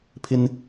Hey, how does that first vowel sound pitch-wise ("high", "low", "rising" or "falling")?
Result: high